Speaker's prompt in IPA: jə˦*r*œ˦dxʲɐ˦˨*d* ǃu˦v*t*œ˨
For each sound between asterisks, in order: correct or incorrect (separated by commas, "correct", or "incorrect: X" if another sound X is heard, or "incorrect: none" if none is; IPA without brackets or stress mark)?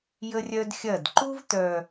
incorrect: rʲ, correct, correct